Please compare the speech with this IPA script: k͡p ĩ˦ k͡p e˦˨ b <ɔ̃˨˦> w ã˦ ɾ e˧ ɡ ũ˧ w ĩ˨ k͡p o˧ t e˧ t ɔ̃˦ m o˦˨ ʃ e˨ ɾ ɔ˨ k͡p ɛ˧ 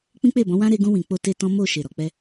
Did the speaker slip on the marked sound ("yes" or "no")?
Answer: no